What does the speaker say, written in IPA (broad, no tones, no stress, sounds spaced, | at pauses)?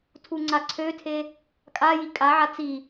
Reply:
tʰ u ŋ͡ǀ a ǀʰ ø tʰ e | kʼ a j i kʼ a ʕ a t͡s i